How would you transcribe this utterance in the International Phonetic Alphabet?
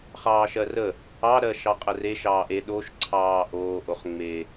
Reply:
χ ɑː ʃ ɜ r ə | ɑ ɾ ɜ ʃ ɑ qʼ ə r e ʃ ɑː ʔ e ɗ o ʃ ǀʰ ɑː ʔ oː ʔ o χ ŋ͡m e

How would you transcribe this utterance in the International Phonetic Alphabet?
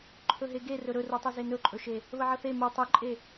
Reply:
ǃʰ ɵ ɦ e ɡ e r ɵ ɾ ɵ r u tˤ u z e n ɵ ǃʼ ɵ ʃ e | β ə ʕ ə θ e m u tˤ ɵ ǃʼ e

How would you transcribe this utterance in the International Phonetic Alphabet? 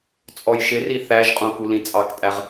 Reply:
t͡sʼ ɔ j ʃ ɪ r i θ æ ʒ qʼ ũ k u l ĩ t͡sʼ ɑ k tʼ æ ʁ

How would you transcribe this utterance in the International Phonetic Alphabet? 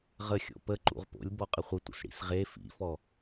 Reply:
ʁ ə xʲ o̰ p ə ǃ ṵ ʁ p o̰ lʲ b ɔ qʼ ə χʷ ə tʷ ə̰ s ɽ ḭ s ʁ e f ḭ f ɔ

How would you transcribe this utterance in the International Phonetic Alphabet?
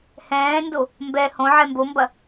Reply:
h ɛ̃ː n d o | m b ɛ h õ ʕ ɛ m b o m b ɐ

